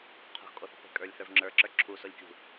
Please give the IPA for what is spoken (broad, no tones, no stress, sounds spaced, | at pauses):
qʰ o̤ x kʼ o θ o̤ p e̤ kʼ ə˞ lʲ θ ə˞ v ŋ͡ǁ ə˞ ǁ ə˞ ǁʰ u s o lʲ kʲ ṳ